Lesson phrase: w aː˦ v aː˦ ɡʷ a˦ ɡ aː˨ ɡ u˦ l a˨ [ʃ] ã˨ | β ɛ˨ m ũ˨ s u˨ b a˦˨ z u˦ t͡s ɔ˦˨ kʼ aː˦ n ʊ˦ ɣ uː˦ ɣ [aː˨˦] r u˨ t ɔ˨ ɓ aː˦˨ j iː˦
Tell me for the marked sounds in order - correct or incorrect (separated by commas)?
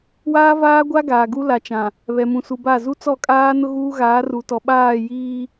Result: incorrect, correct